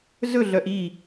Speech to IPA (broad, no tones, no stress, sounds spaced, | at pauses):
z ɵ ɮ œ ʔ i